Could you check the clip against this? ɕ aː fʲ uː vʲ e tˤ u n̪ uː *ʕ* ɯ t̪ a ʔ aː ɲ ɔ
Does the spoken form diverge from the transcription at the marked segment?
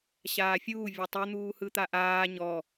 yes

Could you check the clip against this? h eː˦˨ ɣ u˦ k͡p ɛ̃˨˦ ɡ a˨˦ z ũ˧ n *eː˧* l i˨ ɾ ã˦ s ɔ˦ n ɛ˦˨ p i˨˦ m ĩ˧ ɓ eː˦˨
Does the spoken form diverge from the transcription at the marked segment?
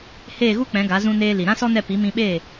no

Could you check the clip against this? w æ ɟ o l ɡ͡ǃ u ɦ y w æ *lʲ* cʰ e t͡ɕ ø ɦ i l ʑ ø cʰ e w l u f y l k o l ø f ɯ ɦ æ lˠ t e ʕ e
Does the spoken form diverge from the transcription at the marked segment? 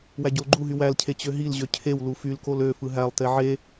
yes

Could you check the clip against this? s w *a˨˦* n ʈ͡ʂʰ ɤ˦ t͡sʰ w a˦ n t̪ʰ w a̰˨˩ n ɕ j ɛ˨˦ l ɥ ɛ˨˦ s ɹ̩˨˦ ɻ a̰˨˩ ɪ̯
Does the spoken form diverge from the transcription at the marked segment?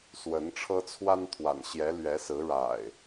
yes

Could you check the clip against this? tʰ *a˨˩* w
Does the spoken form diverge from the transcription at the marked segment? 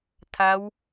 yes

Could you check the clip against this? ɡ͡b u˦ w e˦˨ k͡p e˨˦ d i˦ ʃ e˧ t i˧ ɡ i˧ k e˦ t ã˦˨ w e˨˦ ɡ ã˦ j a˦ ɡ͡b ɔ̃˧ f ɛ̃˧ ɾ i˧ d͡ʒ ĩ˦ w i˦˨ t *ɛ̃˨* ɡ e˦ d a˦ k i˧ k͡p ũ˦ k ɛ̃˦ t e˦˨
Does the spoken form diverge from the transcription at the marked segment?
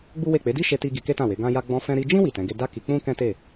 yes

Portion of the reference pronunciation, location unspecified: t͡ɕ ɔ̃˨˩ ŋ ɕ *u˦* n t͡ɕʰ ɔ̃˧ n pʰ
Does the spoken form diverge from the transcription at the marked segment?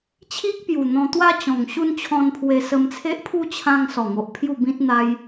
no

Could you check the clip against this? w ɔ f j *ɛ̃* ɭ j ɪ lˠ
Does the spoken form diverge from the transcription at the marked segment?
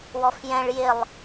no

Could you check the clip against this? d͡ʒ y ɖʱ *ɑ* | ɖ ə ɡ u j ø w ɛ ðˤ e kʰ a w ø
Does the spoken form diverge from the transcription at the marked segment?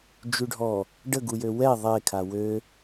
yes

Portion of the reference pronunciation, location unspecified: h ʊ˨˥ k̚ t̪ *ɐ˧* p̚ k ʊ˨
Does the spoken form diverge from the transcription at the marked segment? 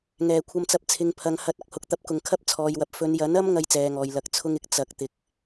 no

